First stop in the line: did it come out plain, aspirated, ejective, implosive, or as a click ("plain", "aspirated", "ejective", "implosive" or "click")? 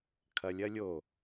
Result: aspirated